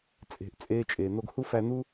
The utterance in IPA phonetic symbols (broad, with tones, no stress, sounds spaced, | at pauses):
t͡sʼ e̤˨ ʔ t͡sʼ eː˧ t͡ʃʼ eː˨ n̪ o˧ ɡ h u˦ f æ˧ n̪ u˦